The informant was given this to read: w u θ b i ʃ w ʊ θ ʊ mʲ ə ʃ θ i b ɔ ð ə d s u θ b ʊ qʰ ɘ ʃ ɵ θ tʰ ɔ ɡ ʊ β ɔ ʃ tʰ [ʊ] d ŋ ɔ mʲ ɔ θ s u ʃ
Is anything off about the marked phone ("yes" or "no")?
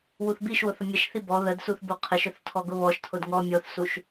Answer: no